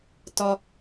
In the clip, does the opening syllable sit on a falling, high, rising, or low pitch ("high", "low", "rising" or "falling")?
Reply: low